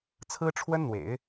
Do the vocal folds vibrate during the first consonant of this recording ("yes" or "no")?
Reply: no